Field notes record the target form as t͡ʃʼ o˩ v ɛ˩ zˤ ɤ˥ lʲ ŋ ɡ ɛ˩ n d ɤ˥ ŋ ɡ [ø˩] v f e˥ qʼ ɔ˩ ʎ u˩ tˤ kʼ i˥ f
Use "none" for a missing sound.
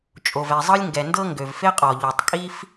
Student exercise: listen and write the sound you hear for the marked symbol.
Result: ø˩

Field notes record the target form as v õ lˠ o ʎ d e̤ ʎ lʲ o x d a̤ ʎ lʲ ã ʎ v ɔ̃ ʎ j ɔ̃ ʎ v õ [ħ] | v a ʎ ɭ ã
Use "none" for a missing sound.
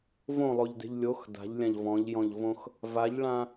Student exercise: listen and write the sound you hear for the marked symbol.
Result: x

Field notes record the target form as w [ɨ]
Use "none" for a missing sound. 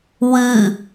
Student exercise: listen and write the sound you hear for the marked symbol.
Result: ɨ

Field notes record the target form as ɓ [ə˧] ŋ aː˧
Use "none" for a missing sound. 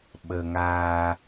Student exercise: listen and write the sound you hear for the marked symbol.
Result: ə˧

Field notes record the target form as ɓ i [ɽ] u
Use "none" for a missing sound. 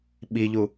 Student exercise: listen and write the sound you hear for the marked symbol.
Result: ʎ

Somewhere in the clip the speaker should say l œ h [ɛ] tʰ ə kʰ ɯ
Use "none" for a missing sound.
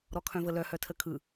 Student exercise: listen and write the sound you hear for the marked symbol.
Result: œ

